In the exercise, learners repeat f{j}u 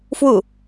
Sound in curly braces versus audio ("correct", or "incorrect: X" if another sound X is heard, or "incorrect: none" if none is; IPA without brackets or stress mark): incorrect: w